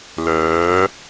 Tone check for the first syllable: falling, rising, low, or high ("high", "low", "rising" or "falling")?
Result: rising